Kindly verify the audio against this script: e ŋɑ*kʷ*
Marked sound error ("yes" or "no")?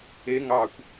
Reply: no